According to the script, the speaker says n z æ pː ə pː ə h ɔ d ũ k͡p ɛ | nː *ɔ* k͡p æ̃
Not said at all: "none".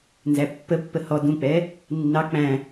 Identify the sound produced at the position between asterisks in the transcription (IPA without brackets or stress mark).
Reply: ɑ